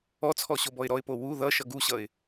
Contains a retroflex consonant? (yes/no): no